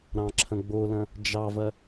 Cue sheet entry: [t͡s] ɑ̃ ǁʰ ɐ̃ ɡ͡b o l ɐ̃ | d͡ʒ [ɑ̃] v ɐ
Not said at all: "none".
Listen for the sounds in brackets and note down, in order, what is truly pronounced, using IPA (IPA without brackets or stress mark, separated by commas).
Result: ɾ, ɑ